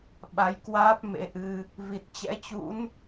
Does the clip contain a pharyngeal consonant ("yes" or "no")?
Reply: no